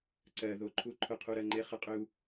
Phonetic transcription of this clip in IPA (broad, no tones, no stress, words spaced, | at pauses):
ǀɜðoǃʰu ǃʰʊqʰuɾɜŋ͡ǃe χəqʼʏu̯